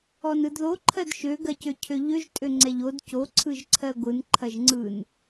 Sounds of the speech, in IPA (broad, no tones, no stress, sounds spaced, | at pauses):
ɔ n ɯ d ð o ǃʰ ɜ d ʃ ø ɡ ɜ c ø cʰ ø ʎ ø ʒ tʼ ø ŋ͡ǀ ɛ ʎ o d c o ǀʰ ɯ ʒ ǀʰ ɜ ɡʷ ɯ n ǃʰ ɐ ʒ ŋ͡ǀ ɯ n